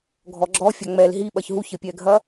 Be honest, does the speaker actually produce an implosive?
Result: yes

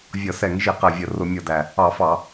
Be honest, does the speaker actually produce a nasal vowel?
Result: no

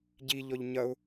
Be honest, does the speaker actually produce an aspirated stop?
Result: no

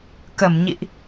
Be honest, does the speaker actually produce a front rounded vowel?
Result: no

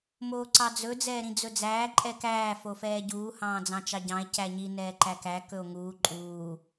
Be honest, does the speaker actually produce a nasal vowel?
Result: yes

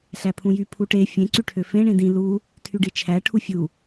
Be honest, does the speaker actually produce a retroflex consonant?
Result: yes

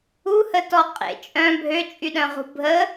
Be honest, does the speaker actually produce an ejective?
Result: yes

